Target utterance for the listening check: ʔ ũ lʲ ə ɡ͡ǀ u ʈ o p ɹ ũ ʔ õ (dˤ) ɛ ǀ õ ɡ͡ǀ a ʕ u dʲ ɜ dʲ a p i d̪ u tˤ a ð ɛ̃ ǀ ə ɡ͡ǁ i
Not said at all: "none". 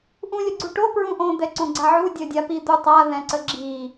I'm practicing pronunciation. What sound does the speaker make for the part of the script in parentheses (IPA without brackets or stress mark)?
d̪